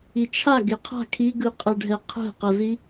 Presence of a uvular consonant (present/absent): present